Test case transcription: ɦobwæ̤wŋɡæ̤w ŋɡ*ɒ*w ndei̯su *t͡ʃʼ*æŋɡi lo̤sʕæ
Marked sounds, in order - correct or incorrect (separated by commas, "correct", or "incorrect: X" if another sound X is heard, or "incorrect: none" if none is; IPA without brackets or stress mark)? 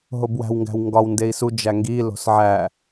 correct, incorrect: d͡ʒ